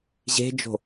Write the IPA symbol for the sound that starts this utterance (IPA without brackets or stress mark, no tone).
ʑ